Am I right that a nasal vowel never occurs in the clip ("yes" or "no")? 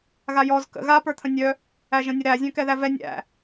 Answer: no